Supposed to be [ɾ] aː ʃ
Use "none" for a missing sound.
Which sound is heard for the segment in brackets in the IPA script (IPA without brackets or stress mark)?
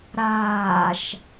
ɾ